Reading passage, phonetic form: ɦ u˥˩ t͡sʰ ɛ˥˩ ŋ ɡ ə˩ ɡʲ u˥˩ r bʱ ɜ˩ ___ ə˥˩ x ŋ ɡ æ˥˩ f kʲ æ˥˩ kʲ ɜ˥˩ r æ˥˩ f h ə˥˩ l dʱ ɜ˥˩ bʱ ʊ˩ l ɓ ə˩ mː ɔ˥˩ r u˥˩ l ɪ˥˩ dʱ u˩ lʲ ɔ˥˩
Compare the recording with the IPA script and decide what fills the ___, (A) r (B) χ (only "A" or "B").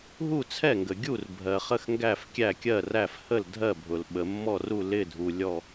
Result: B